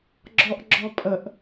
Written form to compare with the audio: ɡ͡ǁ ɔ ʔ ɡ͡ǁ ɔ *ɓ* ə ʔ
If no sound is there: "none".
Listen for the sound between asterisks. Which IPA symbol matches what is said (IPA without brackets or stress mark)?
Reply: pʼ